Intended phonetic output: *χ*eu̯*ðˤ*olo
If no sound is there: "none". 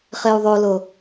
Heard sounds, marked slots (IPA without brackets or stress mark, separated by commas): χ, ðˤ